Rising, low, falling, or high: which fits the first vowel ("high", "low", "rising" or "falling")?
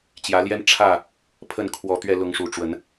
rising